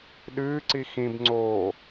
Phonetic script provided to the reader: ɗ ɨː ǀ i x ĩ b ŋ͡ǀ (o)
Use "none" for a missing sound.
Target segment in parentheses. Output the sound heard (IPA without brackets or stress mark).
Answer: oː